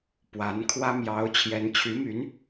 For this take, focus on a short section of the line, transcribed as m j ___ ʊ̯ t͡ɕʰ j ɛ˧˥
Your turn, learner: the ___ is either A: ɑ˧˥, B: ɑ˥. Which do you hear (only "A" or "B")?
A